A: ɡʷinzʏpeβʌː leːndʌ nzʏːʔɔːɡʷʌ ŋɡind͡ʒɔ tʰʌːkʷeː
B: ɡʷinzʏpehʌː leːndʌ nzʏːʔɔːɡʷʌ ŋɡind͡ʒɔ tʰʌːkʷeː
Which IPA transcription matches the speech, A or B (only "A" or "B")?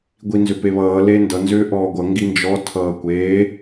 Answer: A